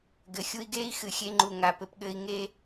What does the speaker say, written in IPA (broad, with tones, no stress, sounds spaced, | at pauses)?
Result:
ɡ ɘ˨ xʲ u˧ i̯ ɡ eː˦ i̯ x ɨ˨ xʲ e˧ ŋ͡ǃ u˨ ŋ a˨ p ɘ˦ p ɠ ɘː˦ i̯ ŋ e˦